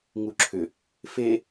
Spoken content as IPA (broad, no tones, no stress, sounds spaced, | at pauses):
ŋ u ǁʰ ʏ | f e